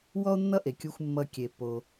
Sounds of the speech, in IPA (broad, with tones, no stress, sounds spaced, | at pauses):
w ɔ˥ o̯ nː ʌ˥ ʔ e˩ kʲ u˨ xʷ mː ʌ˨ kʲ e˩ pː o˩